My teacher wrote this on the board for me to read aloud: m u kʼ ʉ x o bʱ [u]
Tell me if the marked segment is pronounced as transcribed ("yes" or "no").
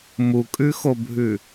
no